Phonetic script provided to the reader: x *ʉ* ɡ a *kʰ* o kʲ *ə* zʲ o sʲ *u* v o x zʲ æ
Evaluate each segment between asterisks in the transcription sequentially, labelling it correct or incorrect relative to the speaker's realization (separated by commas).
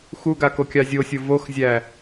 incorrect, incorrect, incorrect, incorrect